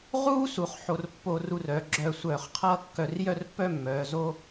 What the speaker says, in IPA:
ʁuː˥su˩˧χ ħo˧rpːo˧ru˧r œ˩˧ ɡ͡ǁœː˧sʷœː˧˩χqʰʌː˥˧ kːœ˧rjœ˥˧rpːœ˥˧ mːœː˩˧ zo˥

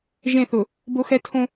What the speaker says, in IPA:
ʒẽ˦˨θʊ˨ | bo˦xɛ˦ tʰõ˦

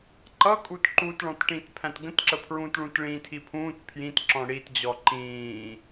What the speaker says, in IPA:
ǃʌkʼut ǃutɭɔ̃tʈĩt pʰæ̃tɡə̃tǁəpʰɹũːt ɭũtɭĩːtʰipʰũːt pʰjĩt ǁɔ̃ɽitd͡ʑɔ ǃĩː

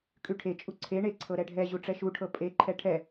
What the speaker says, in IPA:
kʼʉʈʰe t͡ʃʼuǀʰe ɳe ǀʰɤɾɛɖʱɛ ʑuʈ͡ʂɛʃuʈʰɤ pʼeǃʰɛ ʈʰɛ

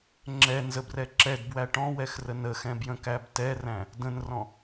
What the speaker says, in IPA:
ŋ͡ǁɛnzəbrɛ ǁɛdbwæ ʈɔ̃wɛxrə nəxɛ̃bjə̃kæb tɛræ̃ | də̃nrɔ̃

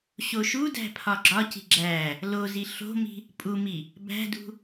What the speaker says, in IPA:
ɕoʃudæ̤ pʰɒɡ͡ǁɒci̤ ɡ͡ǁæ | lozi ɬo̤mi̤ | pʼumi | bæ̤dṳ

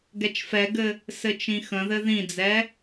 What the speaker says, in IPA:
ɡɛt͡ʃfɛɡɘ | sɘt͡ʃĩxə̃ðɘ ðĩd͡zɛ

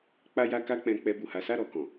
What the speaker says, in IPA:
k͡pa˦ja˦ka˦k͡pɛ̃˧ k͡pɛ˧bu˨ha˨˦ sa˦˨ɾɔ˨kɔ̃˨

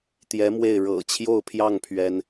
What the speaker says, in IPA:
t̪jɛ˧˥mwe˥˩ɪ̯ ɻɤ̰˨˩t͡ɕʰjo˥˧ʊ̯pʰjɑ˥˩ŋ pʰɥɛ˥n

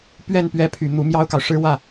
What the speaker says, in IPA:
pɥɛ˥˩n pɥɛ˧˥pʰy˨˩ n̪u˧˥mjɑ˥ʊ̯kɑ˨ʊ̯ʂɻ̩˥ wä˥˩

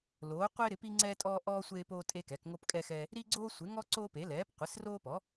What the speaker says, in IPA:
loː˩˥qʷe˦ ɾɪ˩˥pi˦ŋ͡ǀɛː˦tʼɔː˦ ʔɔː˦ sʷeː˦poː˦tʼe˦kɛ˩˥k ŋo˦pkʼɛ˦xɛː˦ | ɾi˦ɡ͡ǀoː˦sʷɪ˩˥ŋɔ˦ ǀoː˦pe˩˥lɛː˩˥p qʷɪ˩˥sroː˦pɔ˩˥

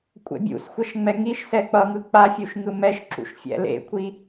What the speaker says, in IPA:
kʷʼɛ̰bʲṵsxʷʌʃ ŋ͡mɛŋiʃsɛ k͡pʌŋɯ k͡pafʲuʃ ŋɯmɛʃǁṵʃ fʲɛ̰lḛkʷʰi

